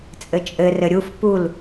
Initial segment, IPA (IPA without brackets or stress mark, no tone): t͡sʼ